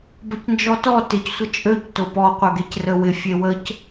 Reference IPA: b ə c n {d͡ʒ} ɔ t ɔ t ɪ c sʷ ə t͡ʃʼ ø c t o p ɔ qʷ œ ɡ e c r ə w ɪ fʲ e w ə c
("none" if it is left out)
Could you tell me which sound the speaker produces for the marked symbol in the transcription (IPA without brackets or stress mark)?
d͡ʒ